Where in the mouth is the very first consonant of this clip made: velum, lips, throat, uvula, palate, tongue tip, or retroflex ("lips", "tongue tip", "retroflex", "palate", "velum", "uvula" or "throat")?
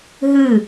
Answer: throat